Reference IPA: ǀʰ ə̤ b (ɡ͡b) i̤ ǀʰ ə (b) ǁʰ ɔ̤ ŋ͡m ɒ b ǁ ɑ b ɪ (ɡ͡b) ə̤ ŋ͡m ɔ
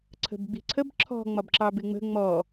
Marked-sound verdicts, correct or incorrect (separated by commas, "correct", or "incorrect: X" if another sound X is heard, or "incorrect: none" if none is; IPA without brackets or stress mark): correct, correct, incorrect: ŋ͡m